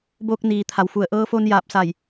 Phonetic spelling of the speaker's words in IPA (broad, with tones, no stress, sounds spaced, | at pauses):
b oː˧ k̚ n iː˩ t̪ʰ a˩ w f u˧˩ ə̯ ʔ ɤː˧ f o˧ n j aː˧˩ p̚ s a˧˩ j